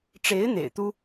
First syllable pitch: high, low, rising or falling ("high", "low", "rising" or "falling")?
rising